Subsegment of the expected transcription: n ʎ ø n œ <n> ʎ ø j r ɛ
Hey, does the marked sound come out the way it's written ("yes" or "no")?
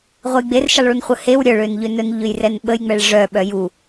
yes